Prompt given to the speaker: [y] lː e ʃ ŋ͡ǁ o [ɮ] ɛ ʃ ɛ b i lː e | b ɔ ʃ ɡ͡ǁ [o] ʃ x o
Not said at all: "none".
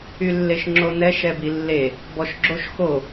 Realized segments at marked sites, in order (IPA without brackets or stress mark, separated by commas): y, n, o